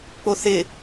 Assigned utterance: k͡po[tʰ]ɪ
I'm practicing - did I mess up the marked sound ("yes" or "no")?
yes